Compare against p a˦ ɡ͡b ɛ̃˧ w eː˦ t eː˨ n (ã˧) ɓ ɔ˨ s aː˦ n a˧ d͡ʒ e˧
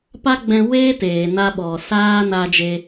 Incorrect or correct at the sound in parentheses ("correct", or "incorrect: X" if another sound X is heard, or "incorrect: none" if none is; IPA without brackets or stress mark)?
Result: incorrect: a˧